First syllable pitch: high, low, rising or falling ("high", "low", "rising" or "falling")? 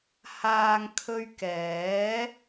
low